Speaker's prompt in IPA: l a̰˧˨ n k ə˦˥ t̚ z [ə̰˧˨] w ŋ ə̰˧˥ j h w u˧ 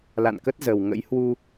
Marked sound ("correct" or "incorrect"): incorrect